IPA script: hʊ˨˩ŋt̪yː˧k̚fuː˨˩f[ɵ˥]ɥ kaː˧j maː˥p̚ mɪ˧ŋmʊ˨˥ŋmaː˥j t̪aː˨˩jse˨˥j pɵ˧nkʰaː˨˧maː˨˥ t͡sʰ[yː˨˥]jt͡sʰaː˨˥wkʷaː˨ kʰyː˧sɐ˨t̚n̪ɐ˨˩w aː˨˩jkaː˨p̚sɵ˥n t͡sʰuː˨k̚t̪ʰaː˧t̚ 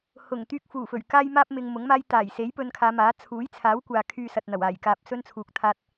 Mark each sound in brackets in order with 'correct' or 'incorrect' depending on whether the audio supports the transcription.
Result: incorrect, incorrect

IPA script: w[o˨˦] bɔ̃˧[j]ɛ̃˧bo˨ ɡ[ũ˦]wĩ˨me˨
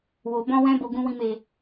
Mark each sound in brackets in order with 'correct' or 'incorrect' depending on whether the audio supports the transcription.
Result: incorrect, incorrect, incorrect

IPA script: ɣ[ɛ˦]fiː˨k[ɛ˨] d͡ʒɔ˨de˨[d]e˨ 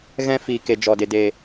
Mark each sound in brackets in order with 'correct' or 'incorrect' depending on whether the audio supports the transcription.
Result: incorrect, incorrect, correct

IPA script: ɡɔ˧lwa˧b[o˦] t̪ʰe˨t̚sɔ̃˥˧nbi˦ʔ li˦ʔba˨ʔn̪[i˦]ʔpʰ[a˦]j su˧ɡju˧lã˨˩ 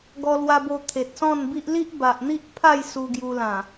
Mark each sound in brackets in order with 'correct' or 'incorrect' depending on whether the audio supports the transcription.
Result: incorrect, correct, incorrect

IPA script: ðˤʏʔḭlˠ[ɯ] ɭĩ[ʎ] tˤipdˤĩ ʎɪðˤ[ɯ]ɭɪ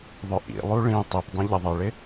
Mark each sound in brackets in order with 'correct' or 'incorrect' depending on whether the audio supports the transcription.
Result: incorrect, incorrect, correct

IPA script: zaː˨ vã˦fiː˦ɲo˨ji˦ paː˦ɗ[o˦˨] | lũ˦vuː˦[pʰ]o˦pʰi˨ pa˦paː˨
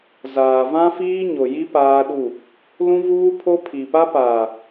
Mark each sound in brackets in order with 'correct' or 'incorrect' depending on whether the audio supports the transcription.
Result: incorrect, correct

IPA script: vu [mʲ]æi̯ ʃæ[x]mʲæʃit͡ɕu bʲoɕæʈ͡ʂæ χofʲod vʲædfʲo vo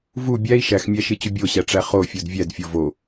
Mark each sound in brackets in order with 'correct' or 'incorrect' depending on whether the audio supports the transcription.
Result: incorrect, correct

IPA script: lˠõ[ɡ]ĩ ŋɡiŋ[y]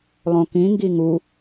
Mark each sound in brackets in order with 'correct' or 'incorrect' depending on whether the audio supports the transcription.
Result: incorrect, incorrect

